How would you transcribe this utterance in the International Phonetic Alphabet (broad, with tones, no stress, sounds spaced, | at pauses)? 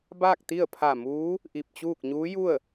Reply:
b aː˥˨ k̚ t̪ i˥˨ ə̯ pʰ a˧˩ m uː˧˥ | ʔ i˧˩ p̚ t͡ɕ uː˥˨ k̚ ɲ uː˧˥ j u˥˨ ə̯